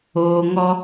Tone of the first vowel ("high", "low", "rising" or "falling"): low